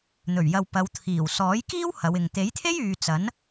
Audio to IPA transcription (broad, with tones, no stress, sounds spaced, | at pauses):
n̪ ɵ˨˩ ɥ j ɐ˨ w p ɐ˨˧ w t̪ʰ iː˨˩ w s ɔː˨˥ j k iː˥ w h ɐ˨˧ w ɪ˨ ŋ t̪ e˨˥ j t̪ʰ e˥ j yː˧ t͡s ɐ˨˥ n